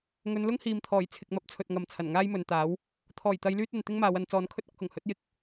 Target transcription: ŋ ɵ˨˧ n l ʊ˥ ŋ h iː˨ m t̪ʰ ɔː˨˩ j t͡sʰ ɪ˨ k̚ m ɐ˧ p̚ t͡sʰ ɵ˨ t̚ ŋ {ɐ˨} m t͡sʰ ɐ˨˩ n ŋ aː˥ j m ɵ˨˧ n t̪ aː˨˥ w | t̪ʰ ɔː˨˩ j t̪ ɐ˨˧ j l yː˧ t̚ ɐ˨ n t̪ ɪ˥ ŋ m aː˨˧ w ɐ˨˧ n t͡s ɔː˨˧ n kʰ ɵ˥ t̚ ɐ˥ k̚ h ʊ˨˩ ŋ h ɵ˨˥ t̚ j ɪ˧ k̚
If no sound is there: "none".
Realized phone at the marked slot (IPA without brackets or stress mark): ɐ˨